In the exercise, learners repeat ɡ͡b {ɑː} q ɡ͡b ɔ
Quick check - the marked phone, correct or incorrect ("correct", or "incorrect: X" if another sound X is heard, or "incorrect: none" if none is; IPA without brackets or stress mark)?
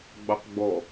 incorrect: ɑ